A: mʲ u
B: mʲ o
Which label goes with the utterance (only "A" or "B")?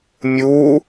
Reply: A